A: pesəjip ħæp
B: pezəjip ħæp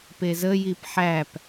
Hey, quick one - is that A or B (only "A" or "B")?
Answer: B